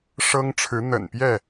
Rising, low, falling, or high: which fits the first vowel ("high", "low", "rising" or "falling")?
high